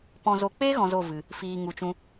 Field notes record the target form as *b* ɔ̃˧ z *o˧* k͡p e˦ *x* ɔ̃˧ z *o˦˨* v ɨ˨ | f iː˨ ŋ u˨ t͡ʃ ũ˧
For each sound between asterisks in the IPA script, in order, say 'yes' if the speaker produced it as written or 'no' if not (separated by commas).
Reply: no, yes, no, yes